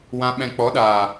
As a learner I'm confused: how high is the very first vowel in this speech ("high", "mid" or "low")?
low